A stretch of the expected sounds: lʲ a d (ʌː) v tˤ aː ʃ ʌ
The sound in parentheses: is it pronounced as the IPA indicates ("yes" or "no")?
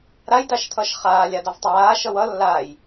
no